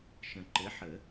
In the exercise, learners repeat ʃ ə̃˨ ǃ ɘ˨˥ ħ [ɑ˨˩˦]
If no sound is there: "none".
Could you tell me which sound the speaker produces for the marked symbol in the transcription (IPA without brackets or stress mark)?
ə˨˩˦